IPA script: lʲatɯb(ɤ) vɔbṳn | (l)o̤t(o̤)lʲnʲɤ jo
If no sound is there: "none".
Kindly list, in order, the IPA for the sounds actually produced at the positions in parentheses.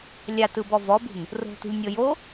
ɔ, r, ṳ

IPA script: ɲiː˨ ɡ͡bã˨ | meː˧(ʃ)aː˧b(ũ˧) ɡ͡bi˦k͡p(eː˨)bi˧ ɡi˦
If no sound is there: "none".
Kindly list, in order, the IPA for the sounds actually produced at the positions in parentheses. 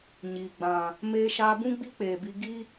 ʃ, ũ˦, eː˨

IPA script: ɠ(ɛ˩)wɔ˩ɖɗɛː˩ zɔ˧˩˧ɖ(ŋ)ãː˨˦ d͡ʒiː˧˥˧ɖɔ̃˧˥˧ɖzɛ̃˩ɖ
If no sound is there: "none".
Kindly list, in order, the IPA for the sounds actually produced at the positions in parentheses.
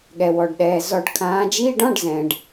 ɛ˩, kʰ

